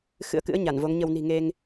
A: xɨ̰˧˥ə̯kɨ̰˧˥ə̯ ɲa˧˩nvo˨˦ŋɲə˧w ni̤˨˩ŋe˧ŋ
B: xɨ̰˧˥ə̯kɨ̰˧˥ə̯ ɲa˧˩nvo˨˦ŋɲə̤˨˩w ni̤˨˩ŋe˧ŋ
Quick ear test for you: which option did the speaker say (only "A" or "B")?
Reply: A